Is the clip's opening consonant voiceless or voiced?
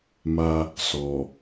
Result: voiced